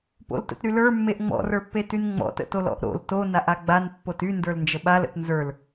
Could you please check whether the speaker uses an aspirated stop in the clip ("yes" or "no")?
no